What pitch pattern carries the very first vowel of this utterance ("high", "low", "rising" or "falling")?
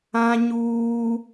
high